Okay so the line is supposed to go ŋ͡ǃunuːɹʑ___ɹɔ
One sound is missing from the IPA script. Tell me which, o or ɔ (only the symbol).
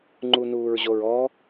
o